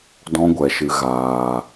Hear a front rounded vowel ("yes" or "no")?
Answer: no